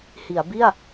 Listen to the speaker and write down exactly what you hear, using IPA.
hi˩˦a̯bi˥˩a̯

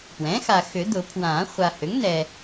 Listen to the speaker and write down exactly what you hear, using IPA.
pwɛ̃˩˥xa˨ xʏ˨˩˦dʊ˨˩˦pʰwãː˨˩˦ χʷa˨hʏ˩˥ŋ nɛ˨

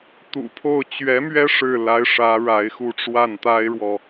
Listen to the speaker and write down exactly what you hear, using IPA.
t̪ṵ˨˩pʰo˥˩ʊ̯ t͡ɕɥɛ˧˥mɥɛ˥ ʂɻ̩˥˩ la˧˥ɪ̯ ʂä˧˥ ɻa˧˥ɪ̯xu˥˧ ʈ͡ʂwa˥˩nt̪a˥ɪ̯ɻwɔ˨

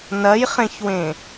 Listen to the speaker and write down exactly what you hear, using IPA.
nɐjχẽçwẽ

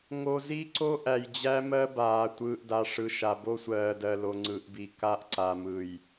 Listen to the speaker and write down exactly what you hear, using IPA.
ŋo˨zi˦ǀo˦ ʔæ˨jd͡ʑæ˦mɜ˦baː˨ tʷɯː˨ʔda˨ ʂɯ˨ʃa˨ bo˦sʷɜː˨dɜ˨lo˨ ŋ͡ǀɯ˨ʔbi˨ ka˦ʔǀa˨mɯ˨j

